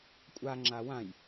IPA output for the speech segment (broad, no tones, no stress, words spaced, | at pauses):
kʷʼaŋ͡ǁa wãj